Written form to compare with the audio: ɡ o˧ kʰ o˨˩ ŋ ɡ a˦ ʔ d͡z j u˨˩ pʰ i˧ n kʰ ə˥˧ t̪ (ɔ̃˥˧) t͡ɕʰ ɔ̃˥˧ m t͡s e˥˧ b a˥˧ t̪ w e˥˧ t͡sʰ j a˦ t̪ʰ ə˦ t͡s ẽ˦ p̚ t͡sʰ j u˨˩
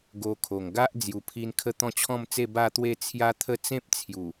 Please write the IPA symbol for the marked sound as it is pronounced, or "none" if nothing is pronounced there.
ɔ̃˥˧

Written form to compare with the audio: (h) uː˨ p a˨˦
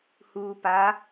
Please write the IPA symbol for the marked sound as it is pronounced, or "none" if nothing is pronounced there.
h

